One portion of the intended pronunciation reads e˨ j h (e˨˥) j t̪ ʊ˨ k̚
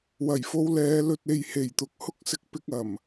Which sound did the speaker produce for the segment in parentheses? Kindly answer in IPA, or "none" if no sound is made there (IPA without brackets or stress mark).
e˨˩